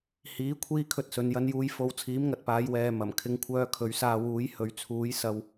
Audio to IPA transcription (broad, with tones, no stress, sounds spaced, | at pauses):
h iː˨˥ kʷʰ iː˥ kʰ ɵ˧ t̚ s ɵ˨˧ n j ɐ˧ n j uː˧ j f o˧ w t͡sʰ iː˨˥ m ŋ ɐ˨ t̚ p aː˨˧ j w ɛː˨ m ɐ˨˩ m kʰ ɪ˧ ŋ kʷʰ œː˧ kʰ ɵ˨˧ ɥ s aː˧ w uː˨˥ j h ɵ˨ ɥ t͡sʰ uː˨˥ j s ɐ˧ w